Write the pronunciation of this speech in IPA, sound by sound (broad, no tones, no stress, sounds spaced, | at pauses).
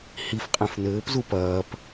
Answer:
h i f qʼ ɛ̃ f n ɘː p z u p ɐː p